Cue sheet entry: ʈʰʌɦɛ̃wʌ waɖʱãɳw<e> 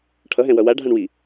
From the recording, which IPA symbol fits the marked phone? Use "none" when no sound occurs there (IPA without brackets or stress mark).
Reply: i